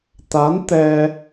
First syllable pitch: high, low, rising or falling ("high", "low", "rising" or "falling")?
rising